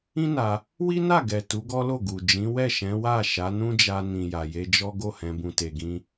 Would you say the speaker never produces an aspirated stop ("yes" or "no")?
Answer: yes